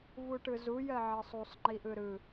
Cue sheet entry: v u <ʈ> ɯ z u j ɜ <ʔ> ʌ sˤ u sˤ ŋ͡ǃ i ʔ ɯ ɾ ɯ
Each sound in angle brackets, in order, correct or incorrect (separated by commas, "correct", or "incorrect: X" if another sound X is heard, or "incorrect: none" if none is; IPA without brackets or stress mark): correct, incorrect: ʕ